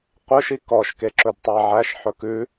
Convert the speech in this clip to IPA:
qʷ œ ʃ i k ɔ ʃ k e ǁ ɵ d tˤ æ ʕ æ ʃ ħ ɵ k ʉ

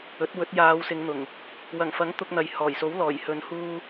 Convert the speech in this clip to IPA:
ɵ˨˥ t̚ w ɵ˨˥ t̚ j aː˨˧ w s ɪ˨˧ ŋ n̪ ʊ˨˩ ŋ | w ɐ˨˩ ŋ f ɐ˨˥ ŋ t̪ ʊ˧ k̚ n̪ ɐ˨ j h ɔː˨˩ j s o˨˥ w l ɔː˨˩ j h ɵ˧ n h uː˧

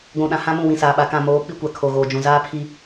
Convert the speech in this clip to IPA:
ɡʷ ũ˨ ɗ ã˨ h ã˦ m ũ˦˨ w ĩ˨ s aː˨ ɓ a˨ k ã˦˨ m oː˨˦ k͡p i˦ kʷ a˨ kʰ o˨ ɣ oː˨ d͡ʒ ũ˨ z aː˦ pʰ i˦

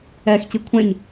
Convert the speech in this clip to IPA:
ɛ x c i kʷʰ ɛ̃ ɲ

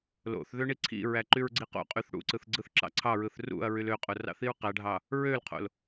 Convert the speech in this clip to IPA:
l o̰ θ ð ø ɳ i ǀʰ ḭ ɹ æ ǃ y ɹ ɡ͡ǀ i q o̰ qʼ y θ ɽ ṵ ǀ ɯ θ ɡ͡ǀ ɯ θ ǁ ɑ̰ ǀʰ ɑ ɹ ɯ θ r ṵ ɐ̯ ɹ y l ø qʼ o r ɑ̰ θ i ɹ q æ ɖʱ ɑ | ɹ ø l qʰ o̰ l

